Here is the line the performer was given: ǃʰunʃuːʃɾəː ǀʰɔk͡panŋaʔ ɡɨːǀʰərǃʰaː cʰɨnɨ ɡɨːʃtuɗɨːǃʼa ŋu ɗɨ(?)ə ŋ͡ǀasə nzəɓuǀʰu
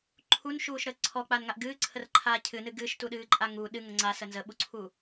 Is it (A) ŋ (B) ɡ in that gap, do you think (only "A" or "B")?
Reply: A